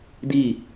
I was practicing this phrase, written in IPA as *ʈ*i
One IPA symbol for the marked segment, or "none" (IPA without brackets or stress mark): d